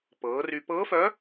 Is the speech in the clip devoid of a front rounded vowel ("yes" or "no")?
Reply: no